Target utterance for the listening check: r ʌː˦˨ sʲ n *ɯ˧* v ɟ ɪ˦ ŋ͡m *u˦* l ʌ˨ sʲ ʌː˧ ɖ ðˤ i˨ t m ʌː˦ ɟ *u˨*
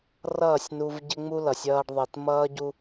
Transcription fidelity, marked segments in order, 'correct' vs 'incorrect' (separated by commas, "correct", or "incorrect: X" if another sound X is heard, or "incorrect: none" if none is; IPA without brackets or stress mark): incorrect: u˧, correct, incorrect: u˦